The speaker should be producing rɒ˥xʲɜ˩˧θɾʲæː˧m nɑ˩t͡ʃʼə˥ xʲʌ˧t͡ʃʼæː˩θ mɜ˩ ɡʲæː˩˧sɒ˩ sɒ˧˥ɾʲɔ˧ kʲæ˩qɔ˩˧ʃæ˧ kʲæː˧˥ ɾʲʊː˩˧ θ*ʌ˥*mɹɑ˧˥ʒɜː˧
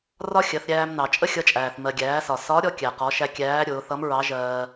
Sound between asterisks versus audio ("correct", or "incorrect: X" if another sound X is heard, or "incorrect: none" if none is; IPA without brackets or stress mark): incorrect: ʌ˧˥